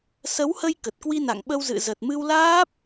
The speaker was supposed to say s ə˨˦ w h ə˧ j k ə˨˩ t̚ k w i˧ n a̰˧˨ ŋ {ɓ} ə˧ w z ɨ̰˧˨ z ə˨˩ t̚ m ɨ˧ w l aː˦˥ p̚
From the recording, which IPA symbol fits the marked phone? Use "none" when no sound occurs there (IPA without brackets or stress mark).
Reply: ɓ